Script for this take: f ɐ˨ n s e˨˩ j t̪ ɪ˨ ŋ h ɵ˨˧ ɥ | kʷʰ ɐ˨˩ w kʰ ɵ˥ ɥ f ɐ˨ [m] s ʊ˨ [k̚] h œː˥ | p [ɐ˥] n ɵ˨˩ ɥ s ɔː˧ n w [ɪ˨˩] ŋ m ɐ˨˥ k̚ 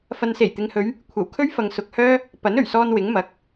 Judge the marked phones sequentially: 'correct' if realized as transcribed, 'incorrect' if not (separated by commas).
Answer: incorrect, correct, incorrect, incorrect